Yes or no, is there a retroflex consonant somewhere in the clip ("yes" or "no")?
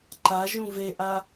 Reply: no